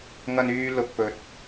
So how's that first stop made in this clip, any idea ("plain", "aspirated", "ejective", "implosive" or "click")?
plain